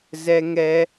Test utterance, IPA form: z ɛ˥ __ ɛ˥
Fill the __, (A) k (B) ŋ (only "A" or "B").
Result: B